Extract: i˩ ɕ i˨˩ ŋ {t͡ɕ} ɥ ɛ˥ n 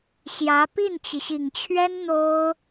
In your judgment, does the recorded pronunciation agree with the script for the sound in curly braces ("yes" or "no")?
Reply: no